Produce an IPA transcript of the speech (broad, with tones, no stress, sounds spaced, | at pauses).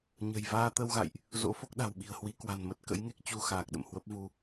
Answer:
ɲ ə̤˨˩ j v aː˧ t̪ ə˧ w ɣ a̰˧˨ j ʔ | z o̰˧˥ f o˦˥ k̚ ɗ a̤˨˩ w ɓ i̤˨˩ ə̯ h w i˨˦ k w a̤˨˩ n m ə˦˥ t̚ k ə̰˧˥ j ŋ e˦˥ k̚ t͡ɕ u˧ x aː˨˩ k̚ ɗ ə̰˧˨ m h w ə˦˥ p̚ v u˧